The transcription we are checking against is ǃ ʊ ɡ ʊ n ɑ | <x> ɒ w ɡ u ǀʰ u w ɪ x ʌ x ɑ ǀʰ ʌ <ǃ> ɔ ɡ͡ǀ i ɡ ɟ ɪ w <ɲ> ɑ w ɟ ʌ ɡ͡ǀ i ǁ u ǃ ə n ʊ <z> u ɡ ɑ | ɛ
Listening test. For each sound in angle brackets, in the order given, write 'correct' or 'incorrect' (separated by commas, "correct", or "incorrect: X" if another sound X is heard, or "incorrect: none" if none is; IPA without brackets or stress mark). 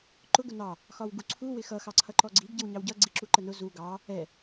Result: correct, correct, correct, correct